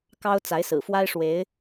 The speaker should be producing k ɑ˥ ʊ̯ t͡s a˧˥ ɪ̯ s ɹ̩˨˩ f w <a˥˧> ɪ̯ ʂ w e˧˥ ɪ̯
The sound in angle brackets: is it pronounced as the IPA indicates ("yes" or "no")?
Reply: no